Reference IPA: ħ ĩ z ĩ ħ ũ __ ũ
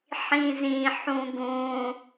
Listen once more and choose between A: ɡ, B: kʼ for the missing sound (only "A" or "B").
A